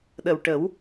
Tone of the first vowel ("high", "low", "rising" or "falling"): low